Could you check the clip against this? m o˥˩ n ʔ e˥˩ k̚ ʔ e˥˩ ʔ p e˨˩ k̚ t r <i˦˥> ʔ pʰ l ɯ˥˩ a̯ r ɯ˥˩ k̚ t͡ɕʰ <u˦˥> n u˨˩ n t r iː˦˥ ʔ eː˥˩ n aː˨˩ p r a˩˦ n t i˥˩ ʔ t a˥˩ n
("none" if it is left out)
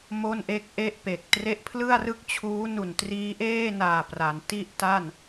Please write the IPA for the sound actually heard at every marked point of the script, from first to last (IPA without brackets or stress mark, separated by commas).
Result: e˦˥, uː˦˥